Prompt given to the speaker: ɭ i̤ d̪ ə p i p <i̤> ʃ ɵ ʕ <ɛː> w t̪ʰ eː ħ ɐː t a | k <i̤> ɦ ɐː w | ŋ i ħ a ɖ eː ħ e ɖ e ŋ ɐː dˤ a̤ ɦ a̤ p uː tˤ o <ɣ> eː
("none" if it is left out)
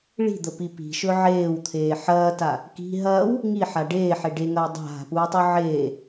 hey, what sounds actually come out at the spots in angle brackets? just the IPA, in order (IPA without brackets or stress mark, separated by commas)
i̤, eː, i̤, ʕ